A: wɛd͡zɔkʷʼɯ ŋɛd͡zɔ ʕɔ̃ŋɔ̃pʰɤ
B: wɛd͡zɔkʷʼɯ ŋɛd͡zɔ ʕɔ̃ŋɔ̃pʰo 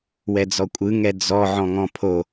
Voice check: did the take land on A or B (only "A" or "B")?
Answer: B